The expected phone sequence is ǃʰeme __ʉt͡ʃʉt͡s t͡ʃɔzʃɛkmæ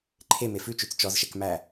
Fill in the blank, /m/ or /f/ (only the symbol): f